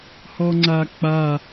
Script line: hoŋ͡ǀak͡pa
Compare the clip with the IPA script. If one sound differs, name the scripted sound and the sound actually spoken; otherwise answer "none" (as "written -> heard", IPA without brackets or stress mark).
o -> ɔ